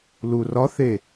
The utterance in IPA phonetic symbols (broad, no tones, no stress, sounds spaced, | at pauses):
l u r ɒ θ e